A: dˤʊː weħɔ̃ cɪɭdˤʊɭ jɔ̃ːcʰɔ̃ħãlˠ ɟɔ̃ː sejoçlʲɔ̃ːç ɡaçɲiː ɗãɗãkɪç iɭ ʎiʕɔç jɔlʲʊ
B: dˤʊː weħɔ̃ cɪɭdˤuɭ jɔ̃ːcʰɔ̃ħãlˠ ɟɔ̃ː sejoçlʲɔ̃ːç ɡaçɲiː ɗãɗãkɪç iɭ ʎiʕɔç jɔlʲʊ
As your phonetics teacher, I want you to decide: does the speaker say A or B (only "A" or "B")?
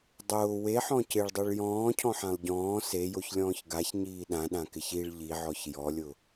B